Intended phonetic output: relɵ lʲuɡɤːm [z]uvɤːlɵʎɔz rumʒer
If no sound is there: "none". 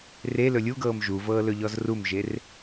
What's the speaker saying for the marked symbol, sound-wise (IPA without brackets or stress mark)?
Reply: ʒ